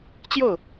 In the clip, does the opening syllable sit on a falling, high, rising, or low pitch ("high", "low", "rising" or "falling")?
falling